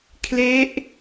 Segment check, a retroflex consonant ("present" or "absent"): absent